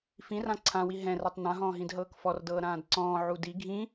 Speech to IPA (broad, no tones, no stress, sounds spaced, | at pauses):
f ĩ r ã ǀʰ ã w i ɦ ɛ̃ r ɛ tˤ n ã ɦ ɔ̃ː ɦ ĩ d ɦ ɤː k f ɔ r d ɤː ɾ ãː d ǀ ɔ̃ː ʕ u d i ɡʱ ĩ